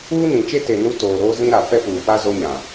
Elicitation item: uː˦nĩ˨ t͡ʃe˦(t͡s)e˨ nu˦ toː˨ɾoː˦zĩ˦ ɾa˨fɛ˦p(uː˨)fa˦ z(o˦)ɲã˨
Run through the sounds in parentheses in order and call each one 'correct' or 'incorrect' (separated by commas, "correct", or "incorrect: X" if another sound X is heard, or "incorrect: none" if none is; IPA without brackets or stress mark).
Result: incorrect: t, correct, correct